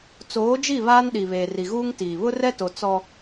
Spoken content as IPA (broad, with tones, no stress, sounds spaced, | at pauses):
t͡s oː˨˦ d͡ʒ i˦˨ β aː˦ n ɗ i˨ β eː˨ r i˨ ɣ uː˦ ŋ t iː˨ β ʊ˦ r ɛ˦ t o˨ t͡s ɔ˦